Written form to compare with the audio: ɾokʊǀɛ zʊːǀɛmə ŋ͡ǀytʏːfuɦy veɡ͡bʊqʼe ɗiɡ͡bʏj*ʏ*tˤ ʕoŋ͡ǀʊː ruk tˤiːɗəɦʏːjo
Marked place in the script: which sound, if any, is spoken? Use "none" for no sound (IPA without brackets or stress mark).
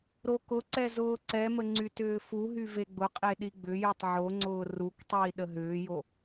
y